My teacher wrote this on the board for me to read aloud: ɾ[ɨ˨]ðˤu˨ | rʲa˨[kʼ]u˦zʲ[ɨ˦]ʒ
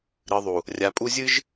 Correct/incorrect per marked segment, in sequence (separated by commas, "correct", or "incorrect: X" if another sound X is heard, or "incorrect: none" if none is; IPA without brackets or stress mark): correct, incorrect: pʼ, correct